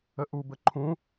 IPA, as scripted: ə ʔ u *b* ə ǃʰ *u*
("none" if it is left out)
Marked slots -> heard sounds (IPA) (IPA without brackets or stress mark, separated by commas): b, ũ